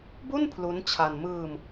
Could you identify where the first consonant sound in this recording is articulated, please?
labial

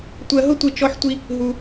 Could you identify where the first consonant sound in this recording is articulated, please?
alveolar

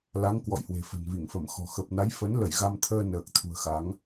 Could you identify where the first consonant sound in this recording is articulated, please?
alveolar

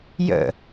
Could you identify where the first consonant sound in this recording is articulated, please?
palatal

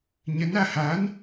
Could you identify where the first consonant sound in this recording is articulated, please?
palatal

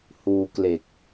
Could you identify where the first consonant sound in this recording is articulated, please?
glottal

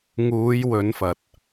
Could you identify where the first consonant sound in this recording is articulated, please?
velar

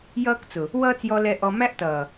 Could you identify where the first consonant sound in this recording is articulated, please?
palatal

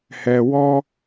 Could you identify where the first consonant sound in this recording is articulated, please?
glottal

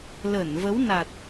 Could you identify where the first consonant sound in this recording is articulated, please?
alveolar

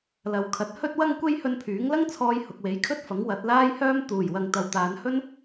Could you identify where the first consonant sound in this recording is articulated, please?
alveolar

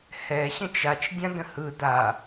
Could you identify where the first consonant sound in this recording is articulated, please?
glottal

